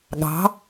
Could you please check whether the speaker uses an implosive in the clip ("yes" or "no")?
yes